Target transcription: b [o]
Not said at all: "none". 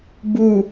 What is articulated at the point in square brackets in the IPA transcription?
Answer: u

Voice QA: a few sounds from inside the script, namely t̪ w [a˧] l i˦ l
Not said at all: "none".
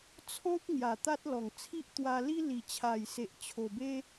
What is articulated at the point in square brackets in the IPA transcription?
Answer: a˧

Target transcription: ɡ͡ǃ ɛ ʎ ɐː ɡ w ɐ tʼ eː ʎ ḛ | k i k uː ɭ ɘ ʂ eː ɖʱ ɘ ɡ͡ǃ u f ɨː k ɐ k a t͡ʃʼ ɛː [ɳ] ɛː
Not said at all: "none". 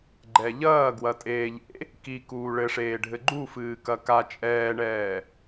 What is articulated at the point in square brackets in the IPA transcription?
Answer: ɳ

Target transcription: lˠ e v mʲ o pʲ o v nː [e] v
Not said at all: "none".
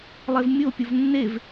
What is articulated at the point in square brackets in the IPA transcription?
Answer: e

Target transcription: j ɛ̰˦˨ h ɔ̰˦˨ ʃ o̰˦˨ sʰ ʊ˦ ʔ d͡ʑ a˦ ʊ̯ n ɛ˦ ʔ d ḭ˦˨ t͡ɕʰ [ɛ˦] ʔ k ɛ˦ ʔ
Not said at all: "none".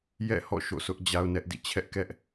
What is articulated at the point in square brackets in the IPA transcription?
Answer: ɛ˦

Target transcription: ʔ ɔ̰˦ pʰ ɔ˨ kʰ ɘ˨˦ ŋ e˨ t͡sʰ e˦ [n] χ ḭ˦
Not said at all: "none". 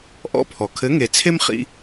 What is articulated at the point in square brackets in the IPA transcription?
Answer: m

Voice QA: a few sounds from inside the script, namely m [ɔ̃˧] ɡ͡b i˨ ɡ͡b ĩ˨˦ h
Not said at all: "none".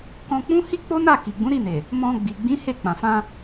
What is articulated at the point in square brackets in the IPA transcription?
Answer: ɔ̃˧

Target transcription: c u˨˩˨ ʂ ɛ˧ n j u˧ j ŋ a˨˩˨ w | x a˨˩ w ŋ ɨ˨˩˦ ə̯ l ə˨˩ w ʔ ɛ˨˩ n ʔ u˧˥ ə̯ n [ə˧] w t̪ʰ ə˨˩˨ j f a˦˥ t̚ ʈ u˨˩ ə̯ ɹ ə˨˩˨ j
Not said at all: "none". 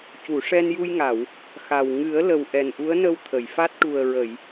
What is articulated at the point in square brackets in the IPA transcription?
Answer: ə˧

